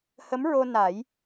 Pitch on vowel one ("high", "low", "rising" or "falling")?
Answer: rising